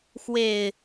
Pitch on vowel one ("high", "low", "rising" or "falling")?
low